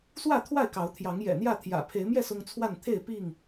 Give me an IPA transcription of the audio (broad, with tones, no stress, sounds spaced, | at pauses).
s w ä˥˨ t̪ʰ w a˥˨ ɪ̯ k ɑ˨˦ ʊ̯ t̪ʰ j ɑ˨˦ ŋ j ɛ̰˨˩ n̪ j ä˥˨ t̪ʰ j ä̰˨˩ pʰ e˨˦ ɪ̯ m j ɛ˥˨ s ʊ˦ ŋ t͡sʰ w a˥˨ n t̪ʰ e˥˨ ɪ̯ p i˥˨ ŋ